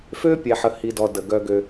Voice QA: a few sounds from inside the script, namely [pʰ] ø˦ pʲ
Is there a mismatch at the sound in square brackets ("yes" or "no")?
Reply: yes